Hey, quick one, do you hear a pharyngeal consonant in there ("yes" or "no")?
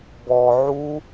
yes